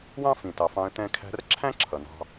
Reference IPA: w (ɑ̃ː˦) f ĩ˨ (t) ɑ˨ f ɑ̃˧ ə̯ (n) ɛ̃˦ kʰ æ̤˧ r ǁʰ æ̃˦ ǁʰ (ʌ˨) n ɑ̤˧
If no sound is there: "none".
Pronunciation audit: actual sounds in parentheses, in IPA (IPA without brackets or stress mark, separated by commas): ɑ̃˦, t, t, ʌ˨